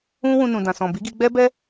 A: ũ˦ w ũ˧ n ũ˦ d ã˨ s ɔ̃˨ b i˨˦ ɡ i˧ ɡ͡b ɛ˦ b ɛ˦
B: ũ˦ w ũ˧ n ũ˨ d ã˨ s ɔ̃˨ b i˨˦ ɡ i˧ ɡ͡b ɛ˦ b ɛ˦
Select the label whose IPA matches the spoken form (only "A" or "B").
B